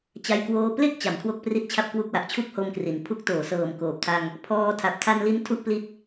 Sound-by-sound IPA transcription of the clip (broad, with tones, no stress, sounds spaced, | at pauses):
t͡ɕ a˧ j k w oː˧ p l e˥˩ k̚ t͡ɕ a˩˦ m kʰ w o˦˥ k̚ p r i˥˩ t̚ t͡ɕʰ a˥˩ p̚ k w u˥˩ k̚ w a˨˩ ʔ t͡ɕʰ u˥˩ k̚ h o˧ m k r i˩˦ n pʰ u˦˥ k̚ t oː˩˦ s ɤː˨˩ m k oː˨˩ p̚ tʰ a˧ ŋ | pʰ ɔː˧ tʰ a˨˩ p̚ tʰ a˧ n l i˦˥ n tʰ u˥˩ ʔ p l i˦˥ t̚